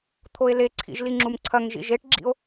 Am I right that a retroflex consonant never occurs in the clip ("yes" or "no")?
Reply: no